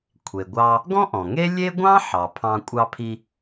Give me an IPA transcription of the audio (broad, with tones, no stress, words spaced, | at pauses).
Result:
kʷʰe˩ɡʷɑ˧ | ɡɔ̃˥ʔɔ̃˩ŋe˥ lʲe˥ ɡʷɑ̃˥ ħɑ˩pʰɑ̃˧ kʷʼɑ˧pʰi˧